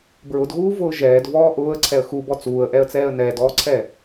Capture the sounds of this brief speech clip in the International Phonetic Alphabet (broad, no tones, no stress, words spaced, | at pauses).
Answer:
bɹʊdɣuːvʊː ʒɛːdvɔː ʔʊːə̯ǀʰɛə̯ xubɔ t͡suːə̯ʔɛə̯t͡sɛːə̯ nɛːdɔːǀʰɛ